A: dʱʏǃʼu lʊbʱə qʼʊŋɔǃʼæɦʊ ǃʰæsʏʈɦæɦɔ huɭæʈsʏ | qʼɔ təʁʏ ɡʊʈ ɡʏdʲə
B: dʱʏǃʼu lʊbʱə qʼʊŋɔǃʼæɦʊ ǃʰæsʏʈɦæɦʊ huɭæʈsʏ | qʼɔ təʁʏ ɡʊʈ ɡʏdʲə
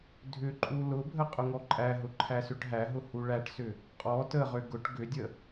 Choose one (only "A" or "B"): B